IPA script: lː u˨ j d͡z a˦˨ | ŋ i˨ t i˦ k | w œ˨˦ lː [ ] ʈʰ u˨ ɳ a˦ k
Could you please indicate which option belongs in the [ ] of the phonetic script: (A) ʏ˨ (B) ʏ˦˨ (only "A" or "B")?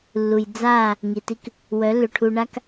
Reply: A